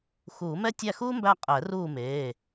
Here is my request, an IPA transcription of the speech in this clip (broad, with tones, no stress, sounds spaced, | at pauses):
x uː˨˩˦ m ɛ˥ tʲ æ˦˨ x uː˥ m b æ˦˨ qʼ ɛ˨˩˦ r uː˦˨ m eː˩˧˩